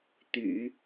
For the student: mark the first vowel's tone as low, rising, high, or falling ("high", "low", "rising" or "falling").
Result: low